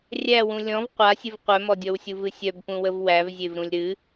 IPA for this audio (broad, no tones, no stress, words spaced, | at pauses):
rʲæwũ lʲɔ̃v qʷasʲɨv qʷœmɔdʲɔwsʲu vɨsʲœbpũwəv wævzʲevɾũlʲ ɾɨ